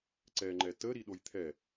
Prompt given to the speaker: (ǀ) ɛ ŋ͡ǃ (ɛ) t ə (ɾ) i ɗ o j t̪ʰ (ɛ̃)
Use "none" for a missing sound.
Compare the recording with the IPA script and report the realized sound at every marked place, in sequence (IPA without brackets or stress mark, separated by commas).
ǀ, ɛ, ɾ, ɛ